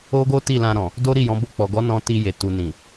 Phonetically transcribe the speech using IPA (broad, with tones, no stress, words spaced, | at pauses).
o˦ɡo˦ ti˦˨lã˧ɾɔ̃˨ | do˦ɾi˦˨jɔ̃˨˦bo˦˨ k͡pɔ˨ɡɔ˨˦nɔ̃˧ ti˧je˨ tu˨nĩ˨